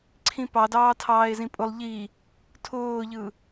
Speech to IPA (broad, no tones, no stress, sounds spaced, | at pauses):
ǀʰ ĩ p ɑ d ɑː tʰ ɑː e̯ z ĩ pʼ ʊ lˠ ʎ i | tʰ ʊː ʎ ɯ